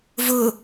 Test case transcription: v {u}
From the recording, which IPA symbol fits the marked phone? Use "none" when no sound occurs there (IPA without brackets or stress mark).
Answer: ʊ